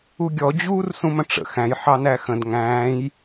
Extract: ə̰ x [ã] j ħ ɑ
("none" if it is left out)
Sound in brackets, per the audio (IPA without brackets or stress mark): æ̃